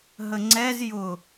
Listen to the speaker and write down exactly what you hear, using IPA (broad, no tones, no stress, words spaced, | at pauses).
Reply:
ɦəŋ͡ǀɛz jʊ